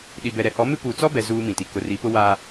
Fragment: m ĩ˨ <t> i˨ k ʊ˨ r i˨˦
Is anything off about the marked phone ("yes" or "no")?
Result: no